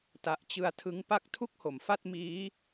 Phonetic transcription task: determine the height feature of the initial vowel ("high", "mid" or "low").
low